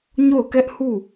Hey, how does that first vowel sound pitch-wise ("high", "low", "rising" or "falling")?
falling